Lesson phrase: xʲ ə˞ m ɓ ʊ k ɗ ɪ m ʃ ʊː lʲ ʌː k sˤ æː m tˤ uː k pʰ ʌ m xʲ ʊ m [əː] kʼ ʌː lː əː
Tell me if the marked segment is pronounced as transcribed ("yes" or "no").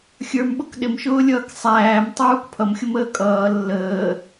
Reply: yes